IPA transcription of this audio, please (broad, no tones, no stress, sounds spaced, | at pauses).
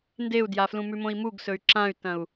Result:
n d e u̯ d j a f l ũ m ʉ m õ i̯ m u ɡ s ɵ y̯ ǁ ã y̯ t ɐ̃ u̯